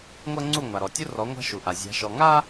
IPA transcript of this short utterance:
ŋʷ ɜ˦ ŋ͡ǀ u˦˨ ŋʷ a˨ ɾ ɔ˨ tʲ u˦ r ɔ˨˦ ŋʷ a̤˦ ʃ u˨ ʔ a˨ zʲ a̤˨˦ ʃ ɔ˨ ŋ a˦

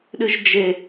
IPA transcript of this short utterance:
ɗ ɨ ʒ d͡ʒ e

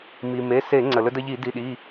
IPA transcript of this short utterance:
m i˩ m e˩˧˩ s e˧˩˧ ŋ͡ǀ ə˩ l ɵ˧ d ə˧ ʎ i˧˩˧ d i˩˧˩ ɗ i˩˧˩

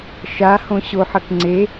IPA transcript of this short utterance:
ʃ a h õ ɕ o ħ ʌ k ŋ͡ǀ e

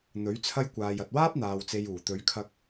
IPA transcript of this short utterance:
n̪ ɵ˨˥ ɥ t͡sʰ ɐ˥ j kʷ aː˨ j ɐ˨ t̚ w aː˥ p̚ n̪ aː˧ w t͡s e˧ j uː˨˩ t̪ ɵ˨˧ ɥ kʰ ɐ˧ k̚

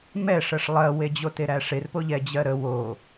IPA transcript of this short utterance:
m ɛ ʂ ɜ ʂ lˠ ɜ w e d͡ʑ o t e ɾ æ ʂ e r p o ʎ ɛ d͡ʑ ɜ ɾ ə w o

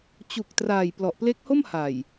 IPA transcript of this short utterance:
t͡ɕ u˨˩ k̚ t r aː˨˩ j p l ɔ˨˩ ʔ p l e˦˥ k̚ h o˥˩ m h a˨˩ j

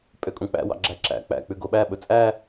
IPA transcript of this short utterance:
pʼ ø kʼ ũ k͡p æ̰ w ɑ̰ ɡ͡ǁ æ ǁ æ̰ k͡p æ̰ k͡p ʉ ɡ o ɓ æ ɓ ɵ t͡sʼ æ

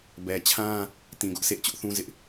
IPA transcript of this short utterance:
b ɛ˨ t͡ɕʰ ã˦ | t ĩ˨ ɡ ʊ˦ ʔ sʰ ḛ˦˨ ɪ̯ t͡ɕ ʊ˦ ʔ θ ũ˦ z ɪ˦ ʔ

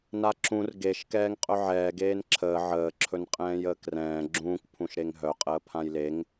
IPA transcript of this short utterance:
n a ǁ ũ r ɡ e ʃ k ɛː ŋ qʼ œ ʕ ɛː ɡ eː n ǁʰ əː ʕ əː ǁʰ ɵ n qʼ ɛ̃ː j əː k r ɛ̃ː ɡ͡ǁ ũː k pʰ ũ ʃ ɾ e ŋ ɦ œ qʼ əː pʰ ã j l e ŋ

